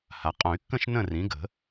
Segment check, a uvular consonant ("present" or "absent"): present